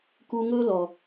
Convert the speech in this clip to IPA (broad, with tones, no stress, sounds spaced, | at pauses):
k u˧ ŋ ɵ˦ l ɔ˨